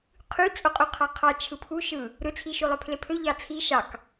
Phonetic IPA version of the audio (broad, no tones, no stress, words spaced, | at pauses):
qʰy t͡sʼoqʼuqʰɑqʰɑ t͡ʃʰɯpʰu ʃɯ | ɾɯt͡sʰiʃu lˠøpʰlepʰø ʎɑt͡sʰi ʃɑk